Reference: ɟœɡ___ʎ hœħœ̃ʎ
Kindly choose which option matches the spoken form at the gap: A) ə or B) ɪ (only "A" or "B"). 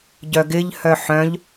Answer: B